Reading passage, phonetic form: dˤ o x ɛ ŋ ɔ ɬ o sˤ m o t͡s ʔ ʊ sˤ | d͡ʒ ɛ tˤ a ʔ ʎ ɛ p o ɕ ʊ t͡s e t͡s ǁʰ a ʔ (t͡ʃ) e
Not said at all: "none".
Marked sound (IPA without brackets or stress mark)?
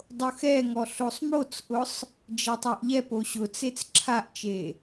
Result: t͡ʃ